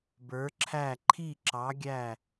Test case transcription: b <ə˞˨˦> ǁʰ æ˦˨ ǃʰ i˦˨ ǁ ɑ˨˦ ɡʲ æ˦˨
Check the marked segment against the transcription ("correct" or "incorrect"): correct